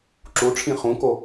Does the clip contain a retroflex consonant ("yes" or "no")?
yes